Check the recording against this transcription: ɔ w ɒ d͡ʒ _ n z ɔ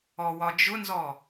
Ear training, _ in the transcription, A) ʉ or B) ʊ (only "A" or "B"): B